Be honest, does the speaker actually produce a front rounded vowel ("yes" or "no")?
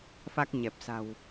no